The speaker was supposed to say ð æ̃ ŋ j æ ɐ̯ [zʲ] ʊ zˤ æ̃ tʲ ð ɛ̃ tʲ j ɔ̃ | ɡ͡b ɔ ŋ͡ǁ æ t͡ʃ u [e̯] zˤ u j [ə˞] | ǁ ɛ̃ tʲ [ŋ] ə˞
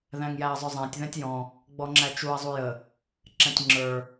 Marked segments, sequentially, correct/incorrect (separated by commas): incorrect, incorrect, incorrect, incorrect